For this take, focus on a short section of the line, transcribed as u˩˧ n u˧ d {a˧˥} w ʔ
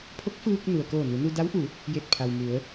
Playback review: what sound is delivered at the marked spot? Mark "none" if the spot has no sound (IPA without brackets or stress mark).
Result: a˧˥